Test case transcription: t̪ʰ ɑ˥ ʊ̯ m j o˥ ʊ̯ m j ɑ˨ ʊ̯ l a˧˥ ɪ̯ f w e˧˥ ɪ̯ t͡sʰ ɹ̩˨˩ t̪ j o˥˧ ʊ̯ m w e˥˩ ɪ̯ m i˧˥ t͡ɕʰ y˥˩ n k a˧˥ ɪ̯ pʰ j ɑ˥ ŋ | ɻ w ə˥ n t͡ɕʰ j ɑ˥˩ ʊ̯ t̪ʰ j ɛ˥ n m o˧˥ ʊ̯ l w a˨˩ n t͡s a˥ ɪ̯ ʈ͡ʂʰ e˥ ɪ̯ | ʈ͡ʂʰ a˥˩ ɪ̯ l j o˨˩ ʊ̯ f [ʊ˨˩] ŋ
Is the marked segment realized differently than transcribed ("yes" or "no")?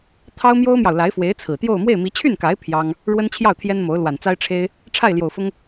yes